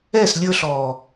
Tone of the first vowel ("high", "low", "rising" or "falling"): falling